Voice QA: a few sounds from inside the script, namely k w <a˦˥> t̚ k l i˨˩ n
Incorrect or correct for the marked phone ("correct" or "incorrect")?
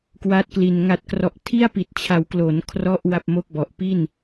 correct